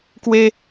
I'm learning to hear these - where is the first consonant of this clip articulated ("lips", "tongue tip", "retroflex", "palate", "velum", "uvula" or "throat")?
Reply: velum